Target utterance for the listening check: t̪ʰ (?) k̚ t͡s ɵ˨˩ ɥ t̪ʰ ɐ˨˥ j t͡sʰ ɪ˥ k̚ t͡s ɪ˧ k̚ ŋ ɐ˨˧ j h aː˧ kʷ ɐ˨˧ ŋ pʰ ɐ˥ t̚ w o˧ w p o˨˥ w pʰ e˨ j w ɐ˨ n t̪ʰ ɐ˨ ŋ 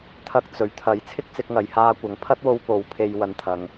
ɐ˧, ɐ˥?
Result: ɐ˧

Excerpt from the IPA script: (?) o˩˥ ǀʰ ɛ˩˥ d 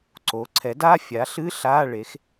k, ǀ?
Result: ǀ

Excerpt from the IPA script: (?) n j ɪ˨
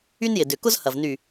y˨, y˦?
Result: y˦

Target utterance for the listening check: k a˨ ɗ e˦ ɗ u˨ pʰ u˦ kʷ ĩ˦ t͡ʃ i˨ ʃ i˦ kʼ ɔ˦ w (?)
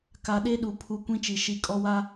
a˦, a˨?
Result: a˦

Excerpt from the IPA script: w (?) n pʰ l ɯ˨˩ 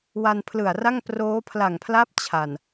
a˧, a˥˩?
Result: a˧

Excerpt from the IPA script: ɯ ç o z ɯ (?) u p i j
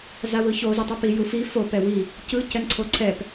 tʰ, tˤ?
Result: tˤ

